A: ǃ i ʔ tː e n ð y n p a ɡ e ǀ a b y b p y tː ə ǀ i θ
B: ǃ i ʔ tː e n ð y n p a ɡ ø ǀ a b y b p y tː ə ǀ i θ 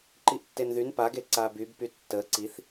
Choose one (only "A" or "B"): A